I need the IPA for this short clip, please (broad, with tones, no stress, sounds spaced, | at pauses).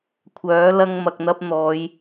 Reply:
kʷʰ œː˨˥ l ɐ˧ ŋ m ɐ˨ k̚ n̪ ɐ˧ p̚ n̪ ɔː˨˧ j